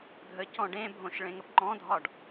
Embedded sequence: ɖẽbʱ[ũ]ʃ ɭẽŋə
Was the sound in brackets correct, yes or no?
no